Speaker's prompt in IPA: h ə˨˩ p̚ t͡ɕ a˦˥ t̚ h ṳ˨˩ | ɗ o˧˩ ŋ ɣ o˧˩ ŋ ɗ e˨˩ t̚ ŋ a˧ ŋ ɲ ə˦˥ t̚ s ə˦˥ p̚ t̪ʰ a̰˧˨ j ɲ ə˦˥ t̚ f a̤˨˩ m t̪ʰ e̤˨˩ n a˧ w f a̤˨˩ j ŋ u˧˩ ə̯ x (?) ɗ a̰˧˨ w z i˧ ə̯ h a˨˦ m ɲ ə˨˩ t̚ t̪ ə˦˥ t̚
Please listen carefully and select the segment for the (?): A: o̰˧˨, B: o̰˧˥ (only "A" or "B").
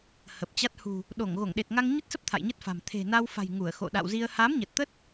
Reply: A